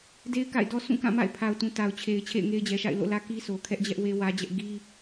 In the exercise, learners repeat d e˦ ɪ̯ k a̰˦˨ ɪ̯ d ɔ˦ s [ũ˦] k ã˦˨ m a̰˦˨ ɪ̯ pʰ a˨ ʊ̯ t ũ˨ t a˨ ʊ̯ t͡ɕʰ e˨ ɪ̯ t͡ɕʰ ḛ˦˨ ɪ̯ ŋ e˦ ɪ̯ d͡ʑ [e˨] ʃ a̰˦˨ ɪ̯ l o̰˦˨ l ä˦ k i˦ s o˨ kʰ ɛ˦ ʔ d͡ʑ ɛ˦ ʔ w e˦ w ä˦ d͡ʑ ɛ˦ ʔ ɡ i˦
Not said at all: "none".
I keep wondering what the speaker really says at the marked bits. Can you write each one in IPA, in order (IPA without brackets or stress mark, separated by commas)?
ũ˦˨, ɛ˨